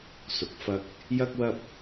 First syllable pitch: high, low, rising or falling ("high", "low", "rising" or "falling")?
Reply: low